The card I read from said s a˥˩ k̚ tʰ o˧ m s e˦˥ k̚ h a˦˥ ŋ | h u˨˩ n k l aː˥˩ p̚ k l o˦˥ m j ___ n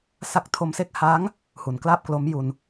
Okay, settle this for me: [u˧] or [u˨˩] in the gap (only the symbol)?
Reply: u˧